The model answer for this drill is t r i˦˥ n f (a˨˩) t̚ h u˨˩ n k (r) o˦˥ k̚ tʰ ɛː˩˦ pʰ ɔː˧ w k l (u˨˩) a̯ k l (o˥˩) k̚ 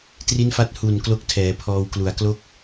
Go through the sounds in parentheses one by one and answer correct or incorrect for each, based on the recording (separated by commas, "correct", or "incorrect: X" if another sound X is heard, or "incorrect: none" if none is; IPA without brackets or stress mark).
incorrect: a˦˥, incorrect: l, correct, incorrect: o˦˥